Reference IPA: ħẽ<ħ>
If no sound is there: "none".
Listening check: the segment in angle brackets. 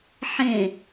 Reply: none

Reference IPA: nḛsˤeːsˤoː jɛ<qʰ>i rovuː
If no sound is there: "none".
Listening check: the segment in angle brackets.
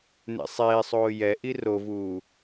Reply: ʔ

